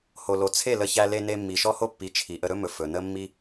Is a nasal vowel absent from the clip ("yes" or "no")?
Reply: yes